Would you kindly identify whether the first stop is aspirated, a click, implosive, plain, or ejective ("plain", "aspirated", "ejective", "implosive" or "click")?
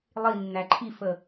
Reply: click